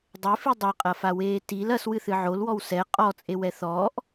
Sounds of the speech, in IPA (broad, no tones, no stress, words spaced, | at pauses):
dˤefi dˤɛqʼɐfaweː til ɐswɨθɨ ʕolwɔw sɛ qʼɔt͡sʼewɛ θɔːʔ